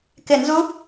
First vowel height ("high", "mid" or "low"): high